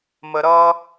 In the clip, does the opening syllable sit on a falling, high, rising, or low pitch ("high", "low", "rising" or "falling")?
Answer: low